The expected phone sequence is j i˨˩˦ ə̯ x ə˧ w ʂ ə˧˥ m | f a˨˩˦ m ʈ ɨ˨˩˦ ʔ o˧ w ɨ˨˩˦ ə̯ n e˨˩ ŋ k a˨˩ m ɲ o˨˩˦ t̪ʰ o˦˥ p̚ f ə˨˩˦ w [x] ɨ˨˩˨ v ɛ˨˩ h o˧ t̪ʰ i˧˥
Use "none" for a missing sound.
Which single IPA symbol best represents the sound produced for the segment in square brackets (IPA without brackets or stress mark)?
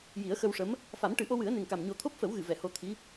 ɣ